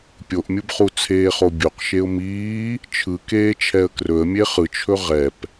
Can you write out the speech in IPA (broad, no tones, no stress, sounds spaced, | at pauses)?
pʲ o ʔ mʲ ɯ b χ u t͡sʰ eː χ o bʲ o q ʃ e ʊ̯ m iː | t͡ʃʰ ɯ k eː t͡ʃʰ ɛ ə̯ k r ɵ ə̯ mʲ e χ ɯ t͡ʃʰ ɵ ʁ ɛ p